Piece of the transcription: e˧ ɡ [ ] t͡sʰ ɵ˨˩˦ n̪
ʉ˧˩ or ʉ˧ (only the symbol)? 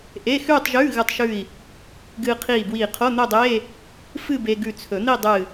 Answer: ʉ˧˩